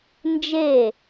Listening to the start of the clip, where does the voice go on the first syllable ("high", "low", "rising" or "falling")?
falling